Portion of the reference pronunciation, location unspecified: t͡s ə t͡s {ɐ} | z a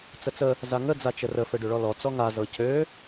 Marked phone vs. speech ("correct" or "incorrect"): incorrect